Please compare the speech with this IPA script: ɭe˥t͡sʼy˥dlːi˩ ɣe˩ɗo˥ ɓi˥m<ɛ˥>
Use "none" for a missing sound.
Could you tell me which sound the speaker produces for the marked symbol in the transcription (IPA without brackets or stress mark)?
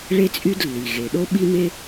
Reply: e˥